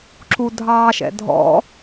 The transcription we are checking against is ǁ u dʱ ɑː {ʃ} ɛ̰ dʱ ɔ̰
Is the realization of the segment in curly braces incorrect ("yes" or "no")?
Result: no